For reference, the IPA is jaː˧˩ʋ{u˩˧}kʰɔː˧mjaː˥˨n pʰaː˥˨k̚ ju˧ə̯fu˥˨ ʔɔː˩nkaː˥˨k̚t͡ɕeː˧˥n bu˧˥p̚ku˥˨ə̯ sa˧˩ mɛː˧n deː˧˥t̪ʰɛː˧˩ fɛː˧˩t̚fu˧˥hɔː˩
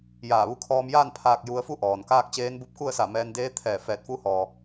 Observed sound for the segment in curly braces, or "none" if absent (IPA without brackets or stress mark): u˧